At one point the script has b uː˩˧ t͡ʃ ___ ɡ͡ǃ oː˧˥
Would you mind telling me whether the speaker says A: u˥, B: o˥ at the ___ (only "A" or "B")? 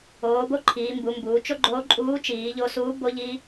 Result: B